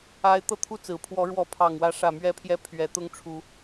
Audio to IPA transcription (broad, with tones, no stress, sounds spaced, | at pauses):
a˦ ɪ̯ t̪ ɤ˥˨ t̪ʰ u˥˨ t͡s ɹ̩˨˩ pʰ w ɔ˨˦ ɻ w ɔ˨˦ pʰ ɑ˨˩ ŋ w ä˨˦ ʂ ä˨˩ m ɥ ɛ˨˦ pʰ j ɛ˨˦ pʰ ɥ ɛ˨˦ t̪ ʊ˦ ŋ ʈ͡ʂʰ u˨˦